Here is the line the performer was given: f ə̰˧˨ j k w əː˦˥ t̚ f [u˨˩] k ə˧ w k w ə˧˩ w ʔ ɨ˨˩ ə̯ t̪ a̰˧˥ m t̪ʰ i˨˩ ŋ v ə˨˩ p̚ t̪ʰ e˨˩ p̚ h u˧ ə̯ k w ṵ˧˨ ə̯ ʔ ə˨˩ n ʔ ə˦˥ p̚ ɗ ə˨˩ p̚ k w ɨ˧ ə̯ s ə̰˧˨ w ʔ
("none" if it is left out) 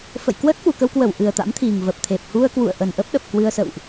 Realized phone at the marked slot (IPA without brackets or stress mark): u˨˩